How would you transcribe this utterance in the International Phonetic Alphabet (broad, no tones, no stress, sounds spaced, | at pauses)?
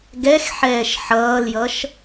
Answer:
ɡ ɛ x ħ ɛː ʃ ħ ʌː l j ʌ ʃ